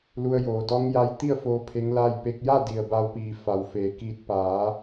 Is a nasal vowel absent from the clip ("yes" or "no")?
yes